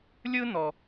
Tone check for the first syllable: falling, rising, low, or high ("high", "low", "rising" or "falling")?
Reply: high